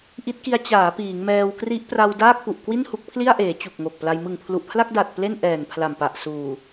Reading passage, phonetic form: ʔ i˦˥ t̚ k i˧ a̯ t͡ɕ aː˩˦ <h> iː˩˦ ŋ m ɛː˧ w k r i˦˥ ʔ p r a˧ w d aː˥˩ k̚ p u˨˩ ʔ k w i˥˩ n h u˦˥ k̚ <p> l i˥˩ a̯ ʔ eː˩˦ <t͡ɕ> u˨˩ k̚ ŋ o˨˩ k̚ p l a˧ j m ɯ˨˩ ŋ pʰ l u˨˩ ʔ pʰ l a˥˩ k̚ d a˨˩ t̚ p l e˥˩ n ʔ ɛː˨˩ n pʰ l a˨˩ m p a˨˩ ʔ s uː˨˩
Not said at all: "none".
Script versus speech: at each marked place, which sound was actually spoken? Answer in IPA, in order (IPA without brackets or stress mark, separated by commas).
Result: p, pʰ, t͡ɕ